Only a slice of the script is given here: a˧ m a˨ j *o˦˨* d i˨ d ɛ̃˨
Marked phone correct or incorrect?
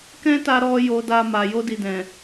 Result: incorrect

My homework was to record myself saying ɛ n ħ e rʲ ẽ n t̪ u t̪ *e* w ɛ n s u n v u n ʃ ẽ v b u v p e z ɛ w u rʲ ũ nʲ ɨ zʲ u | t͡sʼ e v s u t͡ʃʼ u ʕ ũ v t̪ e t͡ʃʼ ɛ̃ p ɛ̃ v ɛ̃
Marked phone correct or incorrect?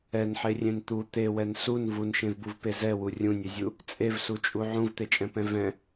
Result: correct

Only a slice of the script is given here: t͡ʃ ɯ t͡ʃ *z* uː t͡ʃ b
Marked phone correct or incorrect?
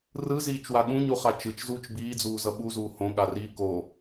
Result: correct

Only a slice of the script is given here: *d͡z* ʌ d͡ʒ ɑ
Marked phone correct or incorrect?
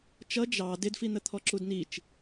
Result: incorrect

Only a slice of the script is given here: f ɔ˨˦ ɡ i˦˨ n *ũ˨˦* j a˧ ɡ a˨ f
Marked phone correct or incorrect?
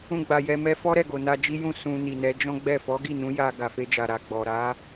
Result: correct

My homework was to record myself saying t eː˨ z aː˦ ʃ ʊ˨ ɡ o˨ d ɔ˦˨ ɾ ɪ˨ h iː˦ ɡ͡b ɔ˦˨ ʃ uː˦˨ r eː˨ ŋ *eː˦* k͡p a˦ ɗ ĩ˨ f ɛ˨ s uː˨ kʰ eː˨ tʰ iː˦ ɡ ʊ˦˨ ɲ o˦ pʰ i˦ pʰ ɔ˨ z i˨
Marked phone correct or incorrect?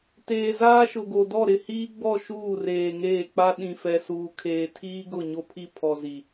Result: incorrect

